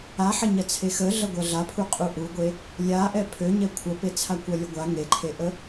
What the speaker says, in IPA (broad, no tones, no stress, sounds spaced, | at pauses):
a ħ ɐ ɲ ɐ t͡sʰ e x ə ɮ ɐ ɡʷ ɐ ɮ a pʰ u qʼ u ʔ u ɡʷ e | lʲ a ʔ ɛ pʰ ø ɲ ɛ kʷʰ ɐ p e t͡sʰ a kʷ ɐ lʲ ə ɡʷ a ŋ e ǃʰ e ʔ ə